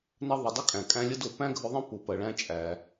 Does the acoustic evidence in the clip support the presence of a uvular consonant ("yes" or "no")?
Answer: no